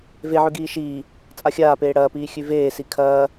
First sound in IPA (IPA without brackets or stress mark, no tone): v